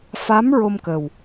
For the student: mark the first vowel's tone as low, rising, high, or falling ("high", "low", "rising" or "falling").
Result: rising